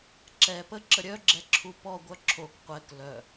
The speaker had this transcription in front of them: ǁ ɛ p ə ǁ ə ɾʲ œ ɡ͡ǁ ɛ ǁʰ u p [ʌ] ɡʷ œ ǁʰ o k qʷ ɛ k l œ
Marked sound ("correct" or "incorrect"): incorrect